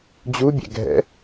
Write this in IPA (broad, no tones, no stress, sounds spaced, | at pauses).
d͡ʑ u bʲ ɛ̰ ɡʱ ɛ̰